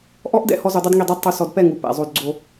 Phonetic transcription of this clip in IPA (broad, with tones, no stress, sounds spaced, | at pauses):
ʔ ɔ˦ ʔ d ɛ̰˦ h ɔ˦ z u˧ dˤ o˦ d ŋ i˦˨ dˤ ɛ˦ d tˤ u˧ s ɔ˧ d p ɛ˦˨ ŋ u˨ p ɛ̰˨ zˤ o˧ d ɡ͡ǀ o˧